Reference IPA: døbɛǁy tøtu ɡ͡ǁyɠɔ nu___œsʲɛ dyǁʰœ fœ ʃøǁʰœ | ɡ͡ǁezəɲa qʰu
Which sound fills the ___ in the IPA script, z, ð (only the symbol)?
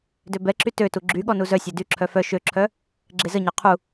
z